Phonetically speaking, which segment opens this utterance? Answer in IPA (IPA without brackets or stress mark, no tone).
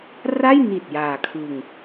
r